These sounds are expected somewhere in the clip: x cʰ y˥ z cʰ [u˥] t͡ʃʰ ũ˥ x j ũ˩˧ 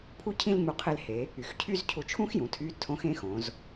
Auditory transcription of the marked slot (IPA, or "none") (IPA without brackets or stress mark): u˧